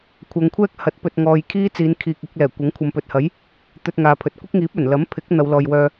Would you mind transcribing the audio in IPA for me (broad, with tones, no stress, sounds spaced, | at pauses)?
kʷʰ ɐ˨˧ ŋ kʷʰ ɛː˥ k̚ h ɐ˨˥ t̚ p ɵ˨ t̚ ŋ ɔː˨ j kʰ iː˥ t͡s iː˨˧ n kʰ iː˨ k̚ ɪ˧ k̚ l ɛː˨˩ kʷ ɐ˨˥ ŋ kʷʰ ɐ˨˧ m p ɵ˨ t̚ h ɐ˨˥ j | t̪ ɵ˧ t̚ ŋ aː˨ pʰ ɵ˨˥ t̚ kʷ ɪ˥ k̚ ŋ iː˨˥ p̚ ɵ˨˩ n l ɐ˨˥ m pʰ ɪ˨˥ k̚ n̪ ɐ˨˧ w l ɔː˨ j w œː˧